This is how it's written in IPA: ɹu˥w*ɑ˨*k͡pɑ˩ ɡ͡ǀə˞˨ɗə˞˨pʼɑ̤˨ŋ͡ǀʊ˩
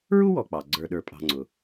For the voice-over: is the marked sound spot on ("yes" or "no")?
no